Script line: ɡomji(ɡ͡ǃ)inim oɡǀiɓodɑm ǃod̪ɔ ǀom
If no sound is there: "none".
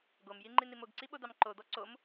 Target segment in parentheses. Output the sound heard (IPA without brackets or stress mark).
ŋ͡ǃ